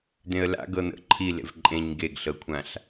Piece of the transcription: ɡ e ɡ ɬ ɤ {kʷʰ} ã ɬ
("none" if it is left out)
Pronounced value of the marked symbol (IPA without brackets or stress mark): kʷʰ